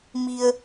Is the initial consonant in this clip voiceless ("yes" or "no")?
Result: no